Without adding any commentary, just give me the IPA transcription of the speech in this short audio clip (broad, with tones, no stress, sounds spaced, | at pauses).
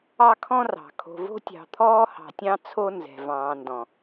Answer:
ɑ˦ kʰ ɔ̃˦ r ɑ̤˨ kʰ o̤˨ v o̤˦ tʲ ɑ̤˨ t̪ʰ ɔː˦ h ɑ̤˨ tʲ ɑ̃˦ t͡sʰ o˦ n z ɛ̤˨ v ɑ̃ː˨ n d ɔ̃˨